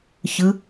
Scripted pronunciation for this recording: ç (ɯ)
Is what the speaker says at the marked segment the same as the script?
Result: yes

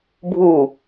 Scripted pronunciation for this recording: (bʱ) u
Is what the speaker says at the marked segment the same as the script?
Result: yes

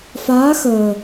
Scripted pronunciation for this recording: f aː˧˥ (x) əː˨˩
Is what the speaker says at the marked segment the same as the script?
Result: yes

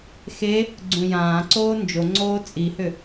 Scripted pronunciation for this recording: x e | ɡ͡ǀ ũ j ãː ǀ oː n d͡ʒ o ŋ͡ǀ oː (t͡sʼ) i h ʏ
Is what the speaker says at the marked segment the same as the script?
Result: yes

